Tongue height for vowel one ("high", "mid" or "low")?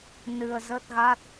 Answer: high